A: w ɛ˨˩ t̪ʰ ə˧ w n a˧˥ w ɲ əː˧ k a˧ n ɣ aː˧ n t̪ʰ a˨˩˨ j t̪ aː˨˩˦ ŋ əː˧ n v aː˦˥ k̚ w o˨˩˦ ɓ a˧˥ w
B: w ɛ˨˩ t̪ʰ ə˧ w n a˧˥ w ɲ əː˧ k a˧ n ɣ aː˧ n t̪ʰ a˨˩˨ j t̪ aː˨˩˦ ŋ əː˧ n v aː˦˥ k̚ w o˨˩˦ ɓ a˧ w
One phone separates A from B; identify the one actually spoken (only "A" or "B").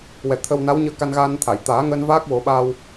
B